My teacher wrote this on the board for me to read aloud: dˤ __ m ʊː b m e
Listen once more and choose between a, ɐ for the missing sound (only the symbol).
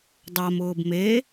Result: a